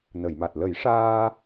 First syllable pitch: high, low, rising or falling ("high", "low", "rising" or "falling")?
low